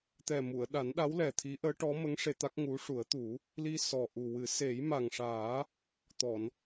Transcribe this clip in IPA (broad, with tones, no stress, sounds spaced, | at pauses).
t̪ ɛ˨˩ m u˨˩˨ ə̯ ɗ a˨˩˦ n ɗ a˧˥ w l ɛ˨˩ t̪ʰ i˧˥ ʔ əː˧˥ ʈ ɔ˧˥ m ə˧˥ ŋ ʂ e˧ t̪ a˦˥ k̚ ŋ u˧˥ ʂ u˨˩˦ ə̯ t̪ u˨˩˦ | l i˧ s ɔ˨˩ ʔ u˨˩ w ɨ˨˩˦ s e˨˩˦ j m a˨˩ ŋ ʂ aː˨˩˦ | t̪ ɔ˨˩˨ n